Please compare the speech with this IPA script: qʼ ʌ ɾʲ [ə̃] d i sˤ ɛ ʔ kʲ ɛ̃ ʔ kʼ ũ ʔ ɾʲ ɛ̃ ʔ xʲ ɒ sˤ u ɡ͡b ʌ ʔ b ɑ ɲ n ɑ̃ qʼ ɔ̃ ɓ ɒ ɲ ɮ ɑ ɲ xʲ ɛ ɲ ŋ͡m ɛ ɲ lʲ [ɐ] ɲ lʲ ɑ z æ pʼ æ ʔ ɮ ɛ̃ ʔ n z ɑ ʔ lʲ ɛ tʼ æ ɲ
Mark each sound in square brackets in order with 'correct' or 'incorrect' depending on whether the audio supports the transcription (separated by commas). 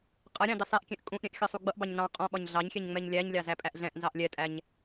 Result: incorrect, incorrect